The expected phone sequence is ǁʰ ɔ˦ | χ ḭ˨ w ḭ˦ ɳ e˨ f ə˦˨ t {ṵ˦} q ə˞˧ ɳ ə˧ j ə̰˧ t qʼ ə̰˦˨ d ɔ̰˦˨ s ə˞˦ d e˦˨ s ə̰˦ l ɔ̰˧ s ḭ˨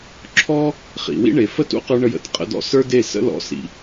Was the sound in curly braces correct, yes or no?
yes